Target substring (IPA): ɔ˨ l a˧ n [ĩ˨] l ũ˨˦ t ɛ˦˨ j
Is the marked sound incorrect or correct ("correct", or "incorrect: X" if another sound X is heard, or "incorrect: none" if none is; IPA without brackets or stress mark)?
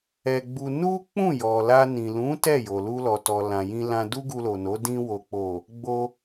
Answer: correct